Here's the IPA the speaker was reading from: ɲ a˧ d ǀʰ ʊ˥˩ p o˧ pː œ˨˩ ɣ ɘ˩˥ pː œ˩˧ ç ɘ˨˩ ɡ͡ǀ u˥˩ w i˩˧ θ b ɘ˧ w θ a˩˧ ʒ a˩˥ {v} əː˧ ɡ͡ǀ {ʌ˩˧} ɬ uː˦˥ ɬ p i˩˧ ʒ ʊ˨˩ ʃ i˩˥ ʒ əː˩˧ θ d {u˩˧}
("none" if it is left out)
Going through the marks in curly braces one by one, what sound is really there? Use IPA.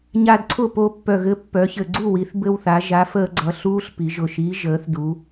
f, ʌ˩˧, u˩˧

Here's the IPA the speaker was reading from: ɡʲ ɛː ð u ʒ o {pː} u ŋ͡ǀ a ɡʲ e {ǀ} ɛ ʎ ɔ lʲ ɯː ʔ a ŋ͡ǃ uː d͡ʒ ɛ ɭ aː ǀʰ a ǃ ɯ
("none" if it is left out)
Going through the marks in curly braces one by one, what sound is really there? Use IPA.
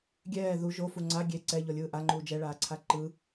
f, ǀ

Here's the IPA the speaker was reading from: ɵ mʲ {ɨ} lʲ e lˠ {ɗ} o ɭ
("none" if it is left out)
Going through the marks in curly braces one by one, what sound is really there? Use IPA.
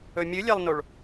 ɨ, n

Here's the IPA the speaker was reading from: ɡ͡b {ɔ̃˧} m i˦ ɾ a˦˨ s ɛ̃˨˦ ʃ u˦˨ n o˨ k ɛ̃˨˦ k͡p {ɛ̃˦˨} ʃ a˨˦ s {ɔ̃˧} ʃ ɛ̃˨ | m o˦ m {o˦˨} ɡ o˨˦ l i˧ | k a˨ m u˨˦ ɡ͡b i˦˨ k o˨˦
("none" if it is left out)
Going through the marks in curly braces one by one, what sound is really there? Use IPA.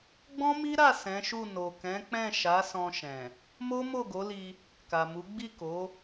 ɔ̃˦, ɛ̃˦˨, ɔ̃˧, o˦˨

